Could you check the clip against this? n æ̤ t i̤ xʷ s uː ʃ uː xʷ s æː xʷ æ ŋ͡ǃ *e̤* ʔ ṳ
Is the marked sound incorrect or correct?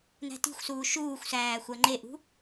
incorrect